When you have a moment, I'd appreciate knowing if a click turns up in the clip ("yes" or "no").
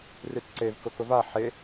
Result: yes